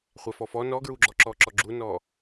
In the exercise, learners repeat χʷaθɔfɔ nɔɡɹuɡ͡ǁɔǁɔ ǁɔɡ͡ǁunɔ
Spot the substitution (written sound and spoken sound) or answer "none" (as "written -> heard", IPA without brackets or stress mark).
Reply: θ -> f